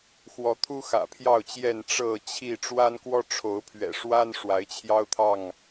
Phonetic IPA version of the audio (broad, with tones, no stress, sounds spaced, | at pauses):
x w ɔ˨˦ t̪ʰ u˦ x ä̰˨˩ pʰ j ɑ˥˨ ʊ̯ t͡ɕ j ɛ˥˨ n ʈ͡ʂ ɤ˥˨ t͡ɕʰ i˥˨ ʈ͡ʂ w a˦ n k w ɔ˦ ʈ͡ʂʰ o˨˦ ʊ̯ pʰ ɥ ɛ̰˨˩ ʂ w a˦ n ʂ w a˨˦ ɪ̯ t͡ɕʰ j ɑ˦ ʊ̯ t̪ʰ ɑ˥˨ ŋ